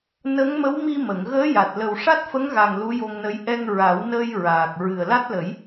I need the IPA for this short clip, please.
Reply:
n ə˧˥ ŋ m ə˧˥ w m i˧ m ə˨˩˨ ŋ ɣ əː˧˥ j a˨˩ t̚ l ə˨˩ w ʂ a˦˥ t̚ f ə˧˥ ŋ ɣ a˨˩ ŋ l u˧˥ j o˧ ŋ n ə˧˥ j ʔ ɛ˧ ŋ ɹ a˨˩˦ w n əː˧ j ɹ aː˨˩ k̚ ɹ ɨ˨˩ ə̯ l a˦˥ t̚ l ə˨˩˦ j

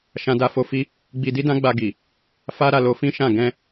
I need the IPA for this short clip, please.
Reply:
ʃ ã˦ d a˦ f o˦ f i˦ | ɡ͡b i˧ d i˦ d ã˦ ɡ͡b a˧ ɡ i˨ | f a˦ ɾ a˧ l o˧ f ĩ˦ ʃ ã˦˨ ɡ ɛ̃˧

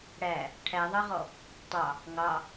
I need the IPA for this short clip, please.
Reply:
ɽ æ | ʈʰ æ ðˤ ɑ ʁ ɔ | tˤ ɑ | ŋ ɑ

